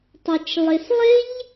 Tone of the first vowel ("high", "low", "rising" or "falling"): low